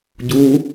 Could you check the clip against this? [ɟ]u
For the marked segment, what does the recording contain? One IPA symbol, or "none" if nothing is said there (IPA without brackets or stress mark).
ɟ